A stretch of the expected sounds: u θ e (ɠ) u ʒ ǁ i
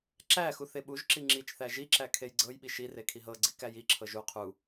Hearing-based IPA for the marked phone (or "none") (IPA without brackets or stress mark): ɓ